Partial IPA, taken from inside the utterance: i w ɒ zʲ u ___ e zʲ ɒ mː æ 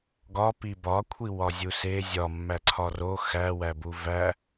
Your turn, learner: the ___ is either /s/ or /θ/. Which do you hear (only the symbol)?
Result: s